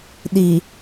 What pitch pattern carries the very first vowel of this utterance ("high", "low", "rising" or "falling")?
low